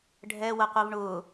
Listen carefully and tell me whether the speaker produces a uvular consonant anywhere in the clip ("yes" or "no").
yes